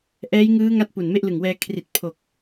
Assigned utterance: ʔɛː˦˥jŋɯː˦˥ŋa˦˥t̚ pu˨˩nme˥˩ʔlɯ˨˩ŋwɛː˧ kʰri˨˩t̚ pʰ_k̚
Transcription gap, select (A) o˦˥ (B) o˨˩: B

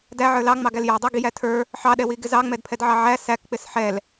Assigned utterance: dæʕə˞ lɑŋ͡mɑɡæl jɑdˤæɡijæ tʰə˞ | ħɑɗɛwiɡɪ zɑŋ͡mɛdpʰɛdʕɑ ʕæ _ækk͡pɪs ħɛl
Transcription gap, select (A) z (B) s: B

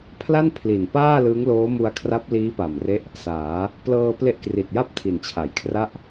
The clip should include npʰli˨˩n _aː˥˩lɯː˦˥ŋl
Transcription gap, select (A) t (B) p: B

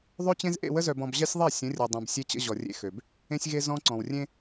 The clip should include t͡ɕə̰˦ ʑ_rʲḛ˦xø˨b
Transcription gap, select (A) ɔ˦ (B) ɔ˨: B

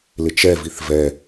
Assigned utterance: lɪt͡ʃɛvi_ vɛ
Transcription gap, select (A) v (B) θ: B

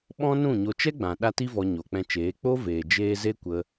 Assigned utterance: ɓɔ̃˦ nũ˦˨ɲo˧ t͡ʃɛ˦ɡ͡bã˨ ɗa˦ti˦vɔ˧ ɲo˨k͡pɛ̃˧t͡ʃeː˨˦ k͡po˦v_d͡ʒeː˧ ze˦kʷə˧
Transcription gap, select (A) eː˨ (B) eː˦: A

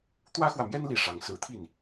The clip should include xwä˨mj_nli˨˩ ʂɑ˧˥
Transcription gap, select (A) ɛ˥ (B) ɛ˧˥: A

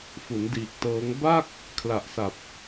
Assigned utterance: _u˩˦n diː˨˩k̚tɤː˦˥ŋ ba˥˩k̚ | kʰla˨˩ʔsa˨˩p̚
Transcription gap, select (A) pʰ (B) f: B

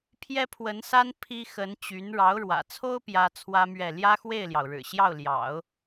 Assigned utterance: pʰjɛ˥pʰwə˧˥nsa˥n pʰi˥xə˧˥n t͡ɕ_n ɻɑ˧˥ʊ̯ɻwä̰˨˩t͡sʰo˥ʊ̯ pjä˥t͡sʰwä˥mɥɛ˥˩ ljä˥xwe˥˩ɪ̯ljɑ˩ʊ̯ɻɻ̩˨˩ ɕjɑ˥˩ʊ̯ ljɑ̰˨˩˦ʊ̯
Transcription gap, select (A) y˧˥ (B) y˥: A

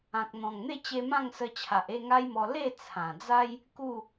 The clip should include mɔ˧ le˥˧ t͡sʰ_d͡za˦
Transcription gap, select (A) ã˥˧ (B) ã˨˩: B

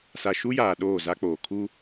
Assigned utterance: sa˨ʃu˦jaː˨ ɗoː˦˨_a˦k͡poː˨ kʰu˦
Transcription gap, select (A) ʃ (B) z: B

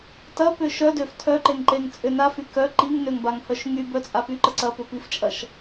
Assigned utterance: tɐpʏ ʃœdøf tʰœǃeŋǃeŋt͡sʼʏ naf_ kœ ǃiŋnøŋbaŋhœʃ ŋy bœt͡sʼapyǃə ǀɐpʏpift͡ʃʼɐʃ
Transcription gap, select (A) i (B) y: B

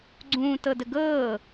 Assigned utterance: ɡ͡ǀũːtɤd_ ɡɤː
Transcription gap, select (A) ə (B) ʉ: A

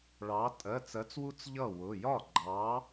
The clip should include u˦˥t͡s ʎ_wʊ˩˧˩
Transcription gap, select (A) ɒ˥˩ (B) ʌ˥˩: B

